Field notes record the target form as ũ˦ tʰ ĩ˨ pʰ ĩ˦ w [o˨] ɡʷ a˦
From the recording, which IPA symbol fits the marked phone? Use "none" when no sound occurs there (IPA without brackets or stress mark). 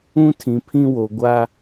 o˨